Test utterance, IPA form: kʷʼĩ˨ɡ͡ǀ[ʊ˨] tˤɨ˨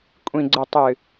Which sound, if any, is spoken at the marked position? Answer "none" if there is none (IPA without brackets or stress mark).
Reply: ʊ˨